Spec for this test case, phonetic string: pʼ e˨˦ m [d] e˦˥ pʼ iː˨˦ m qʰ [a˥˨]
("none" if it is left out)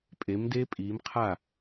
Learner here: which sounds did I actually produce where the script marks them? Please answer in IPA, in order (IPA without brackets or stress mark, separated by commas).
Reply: d, a˥˨